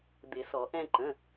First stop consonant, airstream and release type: plain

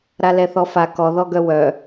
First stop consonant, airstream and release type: plain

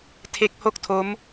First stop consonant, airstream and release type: aspirated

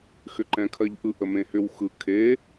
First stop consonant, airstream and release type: click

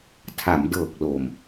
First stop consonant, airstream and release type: aspirated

